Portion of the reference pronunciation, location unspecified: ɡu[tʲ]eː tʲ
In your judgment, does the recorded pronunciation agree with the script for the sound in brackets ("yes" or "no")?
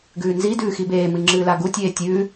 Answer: yes